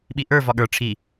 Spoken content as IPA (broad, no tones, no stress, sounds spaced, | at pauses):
ɓ i ʔ ə˞ v ɒ ɠ ə˞ ʈ͡ʂʰ i